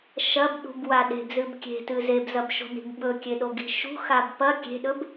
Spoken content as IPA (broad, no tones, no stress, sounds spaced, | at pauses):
ʃ ɐ b ɗ ṳ b w a ɗ e̤ b z ɨ b kʲ e̤ t ɨ z e b z ɐ b ʃ o̤ n i̤ b ɓ ɵ kʲ e ɗ o ɡ i̤ ʃ ṳ x a b p ɐ kʲ e̤ ɗ ɵ b